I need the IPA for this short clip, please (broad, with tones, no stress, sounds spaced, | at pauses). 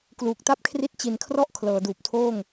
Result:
k l uː˨˩ k̚ t a˥˩ p̚ kʰ r i˦˥ t̚ t͡ɕ i˨˩ n kʰ r ɔ˦˥ ʔ kʰ l ɤː˩˦ d uː˨˩ p̚ tʰ oː˥˩ ŋ